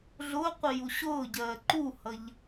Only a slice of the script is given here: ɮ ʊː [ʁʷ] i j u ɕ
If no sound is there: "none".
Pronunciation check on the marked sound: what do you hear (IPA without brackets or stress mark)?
qʷ